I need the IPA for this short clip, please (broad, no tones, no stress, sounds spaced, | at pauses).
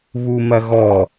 β u m ɐ ɣ ɔ